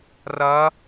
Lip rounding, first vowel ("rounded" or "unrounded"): unrounded